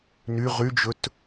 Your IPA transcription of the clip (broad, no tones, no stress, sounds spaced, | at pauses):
n y ʁ y d͡ʒ ɵ t